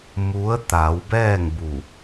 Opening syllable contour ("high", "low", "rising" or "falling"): rising